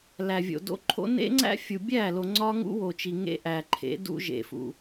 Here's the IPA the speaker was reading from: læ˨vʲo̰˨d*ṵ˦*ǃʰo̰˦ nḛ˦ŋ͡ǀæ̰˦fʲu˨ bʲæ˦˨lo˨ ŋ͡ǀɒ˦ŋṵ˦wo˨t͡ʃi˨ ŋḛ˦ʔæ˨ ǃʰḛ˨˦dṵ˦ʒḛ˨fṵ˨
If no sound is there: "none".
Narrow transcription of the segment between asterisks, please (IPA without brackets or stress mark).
o̰˦